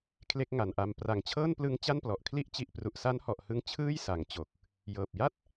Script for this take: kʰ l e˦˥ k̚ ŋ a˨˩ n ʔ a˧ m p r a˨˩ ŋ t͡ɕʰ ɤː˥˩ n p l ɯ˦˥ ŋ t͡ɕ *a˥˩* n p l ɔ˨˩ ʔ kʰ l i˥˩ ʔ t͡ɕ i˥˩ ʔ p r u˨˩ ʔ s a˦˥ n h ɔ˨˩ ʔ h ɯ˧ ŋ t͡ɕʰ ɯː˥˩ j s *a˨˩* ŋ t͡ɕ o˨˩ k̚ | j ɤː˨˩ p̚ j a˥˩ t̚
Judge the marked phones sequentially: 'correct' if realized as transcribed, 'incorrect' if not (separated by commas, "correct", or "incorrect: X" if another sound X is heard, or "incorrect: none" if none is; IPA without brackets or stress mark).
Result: correct, incorrect: a˩˦